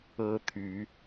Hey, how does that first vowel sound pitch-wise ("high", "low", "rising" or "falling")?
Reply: high